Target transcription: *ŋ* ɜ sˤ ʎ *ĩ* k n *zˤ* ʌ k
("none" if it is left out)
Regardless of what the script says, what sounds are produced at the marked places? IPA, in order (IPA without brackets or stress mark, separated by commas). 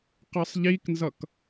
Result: q, i, z